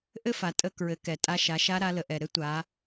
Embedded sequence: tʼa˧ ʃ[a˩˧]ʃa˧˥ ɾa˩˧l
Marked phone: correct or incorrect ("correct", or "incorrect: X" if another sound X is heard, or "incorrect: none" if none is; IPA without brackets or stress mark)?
correct